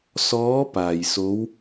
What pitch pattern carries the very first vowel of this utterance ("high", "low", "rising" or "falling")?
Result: rising